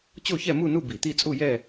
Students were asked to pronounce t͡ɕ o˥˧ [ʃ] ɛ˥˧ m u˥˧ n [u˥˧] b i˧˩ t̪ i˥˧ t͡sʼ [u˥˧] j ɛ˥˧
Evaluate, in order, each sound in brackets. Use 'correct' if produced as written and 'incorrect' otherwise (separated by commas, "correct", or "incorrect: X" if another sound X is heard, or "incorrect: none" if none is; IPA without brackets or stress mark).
incorrect: ç, correct, correct